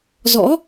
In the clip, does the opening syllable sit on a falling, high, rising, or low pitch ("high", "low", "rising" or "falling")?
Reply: rising